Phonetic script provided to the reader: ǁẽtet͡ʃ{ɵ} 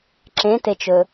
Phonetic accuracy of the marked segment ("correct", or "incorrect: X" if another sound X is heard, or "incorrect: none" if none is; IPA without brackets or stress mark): correct